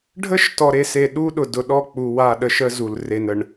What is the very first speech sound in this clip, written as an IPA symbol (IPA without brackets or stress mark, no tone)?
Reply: ɖʱ